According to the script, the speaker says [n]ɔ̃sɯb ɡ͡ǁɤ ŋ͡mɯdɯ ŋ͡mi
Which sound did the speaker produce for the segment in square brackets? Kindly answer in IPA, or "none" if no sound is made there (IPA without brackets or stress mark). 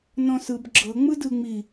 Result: n